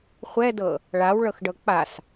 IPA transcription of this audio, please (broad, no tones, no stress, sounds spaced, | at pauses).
χʷ ɛ d ɤ | ɭ a w ɭ ɤ x ɖ ɤ k͡p a s